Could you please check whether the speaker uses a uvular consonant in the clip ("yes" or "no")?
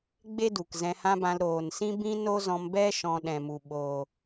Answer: no